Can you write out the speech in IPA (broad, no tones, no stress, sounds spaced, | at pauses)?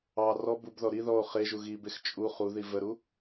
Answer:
ɑ r ɔ b u b ð ɔ ɾ i ð ɔ o̯ χ e ʒ u ɣ i b e x t͡ʃʼ u χ u ð i v ə ɾ u